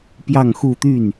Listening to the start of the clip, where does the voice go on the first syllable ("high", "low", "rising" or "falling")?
falling